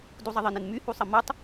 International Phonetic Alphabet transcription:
d u zˤ ə ðˤ ə n ɨ n m y h u sˤ ə m u tˤ

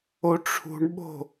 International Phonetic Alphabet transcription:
o ʈ͡ʂʰ ṳ ɳ ɓ o̤

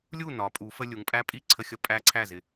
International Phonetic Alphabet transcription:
lʲ u˥˩ n ɒ˩˧ pʼ u˩˧ f ə˧ lʲ u˩˧ ŋ pʼ æ˦˥ pʼ i˥˩ ǀʰ ə˧ xʲ ʌ˧ pʼ æ˦˥ ǀʰ æ˥˩ z ɪ˧

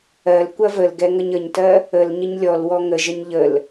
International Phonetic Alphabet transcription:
ɜ l kʷ ɐ v ə l ɡ ɛ ŋ ə ɲ ə ɲ t ɜ | ə l ɲ ə ɲ lʲ ɔ l w ɔ ŋ ə ʒ ə ɲ ʎ ə l

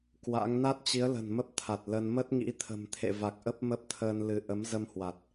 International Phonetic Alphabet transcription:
k w a̰˧˥ ŋ n a˦˥ t̚ t͡ɕ i˨˦ ə̯ l ə̤˨˩ n m ə˦˥ p̚ t̪ʰ a˨˩ t̚ l ə˧ n m ə˦˥ t̚ ŋ ḭ˧˥ t̪ʰ ə̤˨˩ m t̪ʰ ḛ˧˨ v a˨˩ k̚ ʔ ə˦˥ p̚ m ə˦˥ p̚ t̪ʰ əː˧ n l ɨ˨˦ ʔ ə˨˦ m z ə˧ m h w a˨˩ t̚

